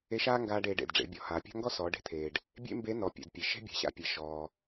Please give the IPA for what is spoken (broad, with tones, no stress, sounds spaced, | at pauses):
e˧˥ ʃ aː˥ ŋ ɡ aː˧ ɖ eː˩˧ ɖ ḛ˩ d ɖ͡ʐ ḛ˩˧ bʲ ɔ˩ h aː˩ pʲ a̤˥ ŋ ɡ ɔ˥ s ɔː˩˧ ɖ e̤˧ t̪ʰ eː˩ ɖ | bʲ ḛ˥ m b e˧˥ n ɔ˩˧ pʲ ḛ˩ d pʲ e˩ ʃ e̤˥ bʲ a̤˩ ɕ a̰˧ pʲ e˩ ʃ ɔː˩